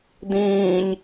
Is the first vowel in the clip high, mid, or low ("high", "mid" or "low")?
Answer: high